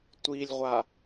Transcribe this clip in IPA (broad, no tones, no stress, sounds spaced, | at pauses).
tʷ i lʲ ʁʷ a